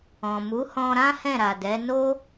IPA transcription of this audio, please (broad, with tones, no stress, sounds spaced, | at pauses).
ɔ̃˨ m u˨˦ h ɔ̃˧ ɾ ã˦ h ɛ̃˦˨ ɾ a˨ d ɛ˨˦ n o˦